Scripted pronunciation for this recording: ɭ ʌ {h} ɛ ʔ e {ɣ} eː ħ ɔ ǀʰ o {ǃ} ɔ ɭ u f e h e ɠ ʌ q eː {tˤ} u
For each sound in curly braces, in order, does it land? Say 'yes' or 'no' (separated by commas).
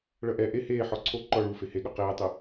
no, no, yes, yes